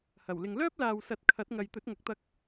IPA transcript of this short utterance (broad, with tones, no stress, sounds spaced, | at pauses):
h ɐ˨˩ w l ɪ˨ ŋ l œː˥ p̚ l aː˨ w s ɐ˨ t̚ kʰ ɐ˨˥ t̚ ŋ ɐ˨ j t̪ ɵ˨˥ t̚ ŋ ɐ˨˥ k̚ t̪ ɐ˧ k̚